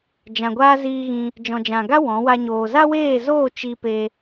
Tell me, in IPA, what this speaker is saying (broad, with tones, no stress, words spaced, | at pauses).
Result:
d͡ʒã˨ɡʷaː˦ziː˧ɣĩ˧ | d͡ʒɔ̃˨d͡ʒã˨ɡa˦ wɔ̃˨˦wa˦ɲoː˧ za˦weː˦˨zoː˦˨ t͡ʃi˧ pe˧